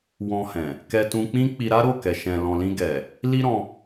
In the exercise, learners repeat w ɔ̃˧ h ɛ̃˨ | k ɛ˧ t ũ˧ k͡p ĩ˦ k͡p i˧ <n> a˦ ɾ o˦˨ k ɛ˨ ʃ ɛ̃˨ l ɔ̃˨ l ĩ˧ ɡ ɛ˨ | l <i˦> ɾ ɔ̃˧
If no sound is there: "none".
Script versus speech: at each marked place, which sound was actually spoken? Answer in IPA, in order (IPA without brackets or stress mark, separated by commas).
ɾ, i˦